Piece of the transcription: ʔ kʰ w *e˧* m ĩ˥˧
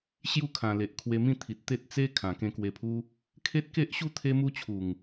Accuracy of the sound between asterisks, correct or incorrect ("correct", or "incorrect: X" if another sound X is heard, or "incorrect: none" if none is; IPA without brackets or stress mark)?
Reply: correct